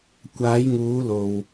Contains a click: no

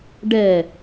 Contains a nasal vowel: no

